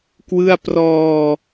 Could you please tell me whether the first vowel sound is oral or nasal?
oral